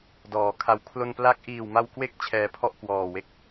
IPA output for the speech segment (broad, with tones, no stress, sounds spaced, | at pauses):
d ɔː˩˦ kʰ a˧ w kʰ l o˧ n p l a˦˥ k̚ ʔ iː˨˩ w m a˧ w k w e˦˥ k̚ t͡ɕʰ ɛː˧ pʰ ɔ˥˩ ʔ k w ɔː˨˩ w e˦˥ k̚